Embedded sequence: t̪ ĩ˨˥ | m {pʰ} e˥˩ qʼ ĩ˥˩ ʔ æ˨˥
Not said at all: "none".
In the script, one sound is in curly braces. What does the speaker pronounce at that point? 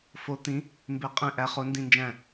b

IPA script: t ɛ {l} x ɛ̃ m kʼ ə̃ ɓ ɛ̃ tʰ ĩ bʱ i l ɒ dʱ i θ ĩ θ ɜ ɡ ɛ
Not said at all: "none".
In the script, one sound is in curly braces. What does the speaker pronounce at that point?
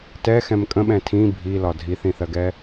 none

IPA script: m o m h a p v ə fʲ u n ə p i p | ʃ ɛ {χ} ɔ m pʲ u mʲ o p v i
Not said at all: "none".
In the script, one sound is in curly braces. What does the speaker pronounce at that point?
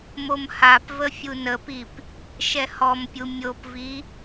h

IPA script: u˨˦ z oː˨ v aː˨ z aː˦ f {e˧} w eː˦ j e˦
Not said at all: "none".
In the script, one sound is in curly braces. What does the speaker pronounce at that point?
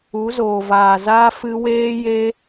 ɨ˧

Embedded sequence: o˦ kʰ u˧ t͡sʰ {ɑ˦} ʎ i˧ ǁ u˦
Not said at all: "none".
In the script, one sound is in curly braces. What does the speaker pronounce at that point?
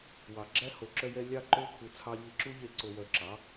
ɑ˦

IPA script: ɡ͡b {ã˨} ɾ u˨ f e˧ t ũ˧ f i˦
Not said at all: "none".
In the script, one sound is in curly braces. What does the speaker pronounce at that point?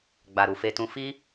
a˨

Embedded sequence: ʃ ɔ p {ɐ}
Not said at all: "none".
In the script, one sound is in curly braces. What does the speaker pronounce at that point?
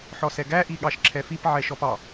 ɑ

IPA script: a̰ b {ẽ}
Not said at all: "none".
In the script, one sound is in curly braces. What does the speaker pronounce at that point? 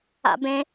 ẽ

